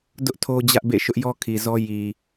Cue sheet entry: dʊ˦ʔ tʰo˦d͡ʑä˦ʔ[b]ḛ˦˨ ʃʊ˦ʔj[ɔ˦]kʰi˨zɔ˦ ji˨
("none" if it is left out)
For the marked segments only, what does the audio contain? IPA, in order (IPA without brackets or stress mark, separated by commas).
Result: b, ɔ˦